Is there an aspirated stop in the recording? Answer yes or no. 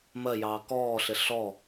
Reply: no